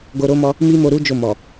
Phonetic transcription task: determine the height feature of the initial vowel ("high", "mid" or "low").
mid